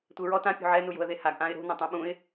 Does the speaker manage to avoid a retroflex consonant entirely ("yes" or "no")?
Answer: yes